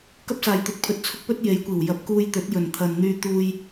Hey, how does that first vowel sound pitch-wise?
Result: high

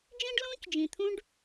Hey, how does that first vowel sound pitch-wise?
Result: high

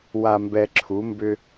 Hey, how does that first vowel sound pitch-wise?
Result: low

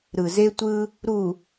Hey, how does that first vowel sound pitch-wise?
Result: low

